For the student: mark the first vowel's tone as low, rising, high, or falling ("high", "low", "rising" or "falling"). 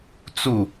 falling